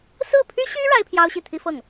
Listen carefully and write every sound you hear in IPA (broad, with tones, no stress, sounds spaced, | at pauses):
s ɹ̩˥˩ pʰ y˥ ɕ y˥ ɻ a˥ ɪ̯ pʰ j ɑ˥ ʊ̯ ɕ i˥˩ t̪ʰ i˥ f ɤ˥˩ ŋ